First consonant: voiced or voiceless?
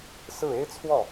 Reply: voiceless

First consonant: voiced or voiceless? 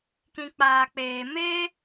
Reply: voiceless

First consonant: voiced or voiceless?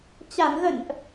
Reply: voiceless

